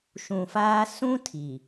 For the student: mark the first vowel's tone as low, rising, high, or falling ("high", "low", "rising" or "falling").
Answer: low